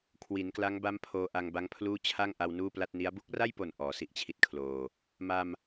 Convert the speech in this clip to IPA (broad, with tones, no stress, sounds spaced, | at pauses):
kʰ w i˩˦ n k l a˦˥ ŋ b a˦˥ m pʰ oː˧ ʔ a˧ ŋ b a˦˥ ŋ pʰ l uː˥˩ t͡ɕʰ a˥˩ ŋ ʔ a˧ w n uː˥˩ p l a˥˩ t̚ n i˦˥ a̯ b u˦˥ k̚ r a˥˩ j p o˨˩ n ʔ ɔː˩˦ s i˦˥ ʔ t͡ɕʰ i˦˥ t̚ kʰ l oː˨˩ | m a˧ m